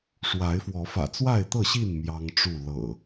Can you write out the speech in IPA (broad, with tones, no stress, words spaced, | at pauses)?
ʂwa˨˦ɪ̯fwɔ˨˦ fä̰˨˩t͡swa˥˨ɪ̯t̪ɤ˥˨ɕi˥˨n mjɑ˦ŋʈ͡ʂu˥˨ lɤ̰˨˩